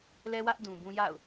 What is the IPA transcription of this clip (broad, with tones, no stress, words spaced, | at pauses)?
lɛ˦wä˦ʔ dũ˨bũ˦ ja̰˦˨ʊ̯